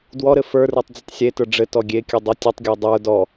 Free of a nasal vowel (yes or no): yes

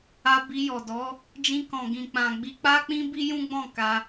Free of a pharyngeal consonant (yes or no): yes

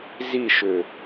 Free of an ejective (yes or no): yes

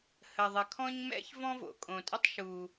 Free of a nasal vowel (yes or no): no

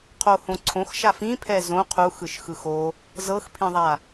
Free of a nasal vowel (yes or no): no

